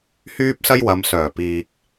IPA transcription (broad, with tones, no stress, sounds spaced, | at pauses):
h yː˥ p̚ s ɐ˥ j w ɐ˨˧ m s œː˨˩ p iː˨ k̚